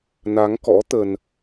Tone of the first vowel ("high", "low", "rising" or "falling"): rising